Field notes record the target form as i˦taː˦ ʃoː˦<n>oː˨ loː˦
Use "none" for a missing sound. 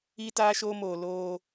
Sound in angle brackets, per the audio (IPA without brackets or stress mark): m